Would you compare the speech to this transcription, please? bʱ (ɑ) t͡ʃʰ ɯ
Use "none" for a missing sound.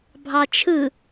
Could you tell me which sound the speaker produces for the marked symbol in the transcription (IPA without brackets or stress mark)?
ɑ